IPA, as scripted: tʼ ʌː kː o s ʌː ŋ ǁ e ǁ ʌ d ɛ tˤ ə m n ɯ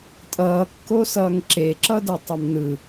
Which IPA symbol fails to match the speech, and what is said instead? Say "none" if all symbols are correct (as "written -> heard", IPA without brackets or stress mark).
ə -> ʌ